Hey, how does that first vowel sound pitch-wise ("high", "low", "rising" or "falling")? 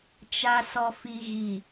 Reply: low